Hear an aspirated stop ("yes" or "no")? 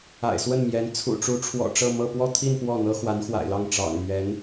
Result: yes